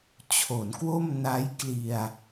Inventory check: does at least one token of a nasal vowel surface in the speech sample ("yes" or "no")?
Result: no